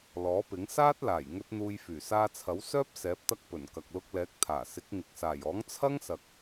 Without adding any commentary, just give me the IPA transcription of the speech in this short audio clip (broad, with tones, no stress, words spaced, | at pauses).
lɔː˨˥pɪ˨˥ŋ saː˥t̚laː˨˩jŋɵ˧t̚ n̪uː˧jfyː˨˩ saː˧t͡sʰɐ˨˥wsœː˥p̚ sɛː˨˥p̚t̪ɐ˥k̚pɵ˨˩n kɐ˨k̚lʊ˧k̚lɛː˨˥k̚ t̪ʰaː˨˩ sɪ˨˥k̚ŋɪ˨k̚ saː˨˩jɔː˨˥ŋ t͡sʰɐ˥ŋsɐ˨k̚